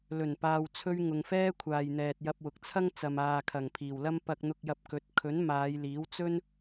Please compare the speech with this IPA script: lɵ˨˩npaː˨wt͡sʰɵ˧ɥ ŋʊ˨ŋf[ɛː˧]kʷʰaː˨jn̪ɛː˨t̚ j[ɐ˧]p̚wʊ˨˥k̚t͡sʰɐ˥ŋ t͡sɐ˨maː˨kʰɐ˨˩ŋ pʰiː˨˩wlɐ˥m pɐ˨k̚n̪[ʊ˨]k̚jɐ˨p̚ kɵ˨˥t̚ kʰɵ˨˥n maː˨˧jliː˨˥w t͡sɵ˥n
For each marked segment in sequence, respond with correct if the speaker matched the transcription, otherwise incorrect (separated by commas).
incorrect, correct, correct